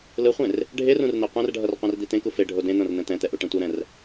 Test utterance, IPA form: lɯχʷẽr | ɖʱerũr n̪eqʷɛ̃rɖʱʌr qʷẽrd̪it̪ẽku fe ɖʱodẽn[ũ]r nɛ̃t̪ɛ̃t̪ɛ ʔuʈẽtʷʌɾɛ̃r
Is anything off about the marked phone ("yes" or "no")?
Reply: yes